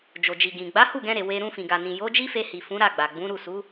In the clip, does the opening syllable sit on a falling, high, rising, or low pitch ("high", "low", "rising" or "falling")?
low